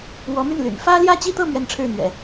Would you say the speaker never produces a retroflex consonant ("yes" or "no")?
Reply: no